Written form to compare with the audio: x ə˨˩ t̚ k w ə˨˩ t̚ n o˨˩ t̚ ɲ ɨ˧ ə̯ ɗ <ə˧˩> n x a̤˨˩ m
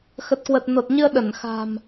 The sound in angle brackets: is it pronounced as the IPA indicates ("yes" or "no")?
yes